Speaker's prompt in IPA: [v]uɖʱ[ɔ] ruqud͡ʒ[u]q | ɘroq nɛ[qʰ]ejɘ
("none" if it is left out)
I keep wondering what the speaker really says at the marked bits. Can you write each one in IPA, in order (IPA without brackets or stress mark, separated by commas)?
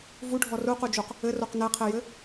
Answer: v, ɔ, u, qʰ